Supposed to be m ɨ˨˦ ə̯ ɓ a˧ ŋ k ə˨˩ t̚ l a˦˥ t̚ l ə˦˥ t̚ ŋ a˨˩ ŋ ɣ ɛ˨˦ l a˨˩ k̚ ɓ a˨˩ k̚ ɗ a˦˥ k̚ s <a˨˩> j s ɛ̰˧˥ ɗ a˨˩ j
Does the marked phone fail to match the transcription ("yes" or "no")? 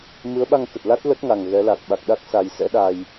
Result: no